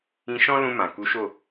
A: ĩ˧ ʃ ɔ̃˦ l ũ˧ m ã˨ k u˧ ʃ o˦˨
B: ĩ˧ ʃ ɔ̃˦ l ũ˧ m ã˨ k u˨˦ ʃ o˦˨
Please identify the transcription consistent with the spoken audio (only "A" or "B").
B